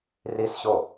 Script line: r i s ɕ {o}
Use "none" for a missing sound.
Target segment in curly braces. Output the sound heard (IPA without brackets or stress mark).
o